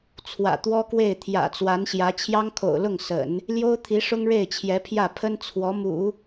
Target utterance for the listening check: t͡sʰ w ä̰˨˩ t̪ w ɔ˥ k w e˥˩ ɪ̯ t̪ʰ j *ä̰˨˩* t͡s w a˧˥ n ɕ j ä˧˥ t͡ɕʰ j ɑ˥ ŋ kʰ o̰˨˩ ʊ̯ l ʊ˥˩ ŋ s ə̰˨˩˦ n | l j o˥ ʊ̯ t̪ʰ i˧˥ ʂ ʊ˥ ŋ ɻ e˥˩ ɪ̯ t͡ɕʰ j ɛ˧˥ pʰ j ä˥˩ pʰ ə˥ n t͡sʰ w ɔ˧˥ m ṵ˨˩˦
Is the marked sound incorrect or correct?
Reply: correct